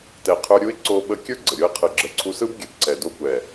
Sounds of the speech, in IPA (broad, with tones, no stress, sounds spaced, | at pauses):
t ɛ˨ qʰ ə˞˧ ɾʲ u˦ ɪ̯ ǀ o˧ ɓ ə˧ kʲ ə˞˦ ɡ͡ǀ ə˨ ɾʲ o˦ ɪ̯ qʰ ɯ˨ ɡ͡ǁ ə˨ ǀʰ u˧ s ɯ˦ b ɡʲ ə˨ b ǀ ɛ˨ d o˦ kʷ ɛ˨